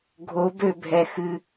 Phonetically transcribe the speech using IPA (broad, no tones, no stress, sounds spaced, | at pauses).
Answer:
ɡʱ o b ø bʱ ɛ x ɨ